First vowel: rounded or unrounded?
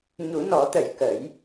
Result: rounded